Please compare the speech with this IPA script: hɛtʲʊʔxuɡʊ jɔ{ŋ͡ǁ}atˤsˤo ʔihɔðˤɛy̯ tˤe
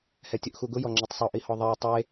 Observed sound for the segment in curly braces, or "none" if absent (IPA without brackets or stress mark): ŋ͡ǁ